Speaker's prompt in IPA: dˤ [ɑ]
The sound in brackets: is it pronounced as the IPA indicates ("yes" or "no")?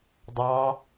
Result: yes